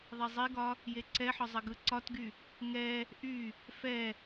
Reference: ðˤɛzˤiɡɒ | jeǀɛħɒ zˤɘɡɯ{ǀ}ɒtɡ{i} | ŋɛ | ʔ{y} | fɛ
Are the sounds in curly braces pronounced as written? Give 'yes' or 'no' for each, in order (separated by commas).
yes, no, yes